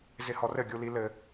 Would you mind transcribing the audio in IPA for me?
z ɪ h ɔ r ɘ ɡʲ u l i l ɘ

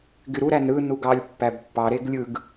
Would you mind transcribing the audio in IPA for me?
ɡ y ɾ u ɾ æ n ɾ ɯ n u ɡ ɑ lʲ pː æ b pː ɑ ɾ e ɡ lʲ ɯ ɡ

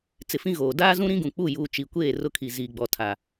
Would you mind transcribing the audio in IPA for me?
t͡s ɪ˨ f ĩ˦ ɣ oː˨ d aː˦ z ũ˦ ɾ ĩ˦ ɡ ũ˨ k͡p u˦˨ j uː˨ t͡ʃ i˨ kʷ eː˦˨ r ʊ˦ kʰ i˨ z iː˨ ɡ͡b ɔ˨ tʰ a˨

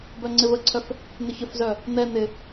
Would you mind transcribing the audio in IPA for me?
b œ ŋ͡ǀ ɪ v ə ǀʰ œ f | n̪ ɪ ç ə f z œ | n̪ ɛ n̪ ɪ

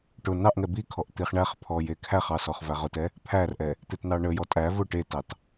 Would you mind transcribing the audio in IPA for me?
ʈ ʊ n ɑ ʔ ŋ ɛ b i kʰ ɔ ʔ t̪ i χ ɳ æ χ pʰ ɔ j e kʰ æ χ ɑ s ɔ χ v æ ʁ ʊ t ɛ | pʰ æ r ʔ ɛ | t̪ e t n ɑ ɳ ə j ɔ tʼ æ v ʊ ʈ e t ɑ t

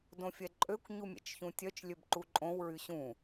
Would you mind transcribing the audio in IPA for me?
d õ fʲ ɛ ǃʼ ø kʷ ɲ u mʲ ɛ̰ t͡ʃ ç ũ tʲ œ t͡ʃ lʲ ø b ǃ u ǃʼ õ w ɹ y ɕ ũ

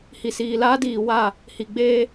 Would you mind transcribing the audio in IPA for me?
h i˨ s iː˨ l aː˦ d iː˨ w a˦˨ | h i˨ ɡ͡b eː˦

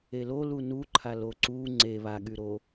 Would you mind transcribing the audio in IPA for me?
e l o l u n u ǃʰ a l o ǀ u ŋ͡ǀ e β a ɠ y ɾ o

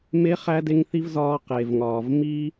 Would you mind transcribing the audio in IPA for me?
m e˦ χ æ˦ d e˦ ŋ θ i˦ v z ɒː˦ q e˨ v ŋ ɒː˨ v m i˦

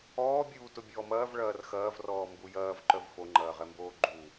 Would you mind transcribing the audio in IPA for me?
ɔː bʲ uː t ʊ bʲ ɔː m ɐː v ɭ ɐː r x ɐː v r ɔː m b u j ɐː v ǃ œ v f o ŋ͡ǃ ɐː ʁ ɛ m b oː ɡ͡ǃ u

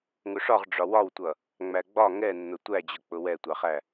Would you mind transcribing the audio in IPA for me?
ŋ ʊ ʂ ɒ ʁ ɖ͡ʐ ɒ w ɒ w tʷ ʌ | ŋ͡m æ ɡ͡b ɒ ŋ ɛ nː ʊ tʷ æ d͡ʑ ʊ k͡p ʊ w ɛ tʷ ɑ χ æ

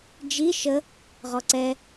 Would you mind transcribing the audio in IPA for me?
d͡ʒ i ʃ ə | ʁ ɔ ǀ ɛ

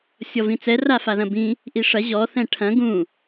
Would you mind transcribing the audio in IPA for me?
sʲ ɔ v ĩ t͡s ɛ r a f a ð ɐ̃ b ĩ | ʔ i ʂ ɐ ʑ ɔ θ ɛ̃ ʈʰ ɐ̃ ɡ ũ

